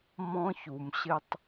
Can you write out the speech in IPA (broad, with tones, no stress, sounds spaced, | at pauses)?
m ɔ̃˦ ç u˨ m ɕ ɪ˧ tˤ